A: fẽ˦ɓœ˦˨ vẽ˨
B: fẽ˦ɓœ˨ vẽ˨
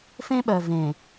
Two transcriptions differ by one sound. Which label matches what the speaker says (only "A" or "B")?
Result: B